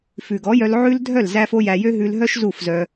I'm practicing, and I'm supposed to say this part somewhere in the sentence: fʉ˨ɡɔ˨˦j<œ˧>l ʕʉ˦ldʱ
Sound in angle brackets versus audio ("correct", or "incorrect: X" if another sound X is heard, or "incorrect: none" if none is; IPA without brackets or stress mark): correct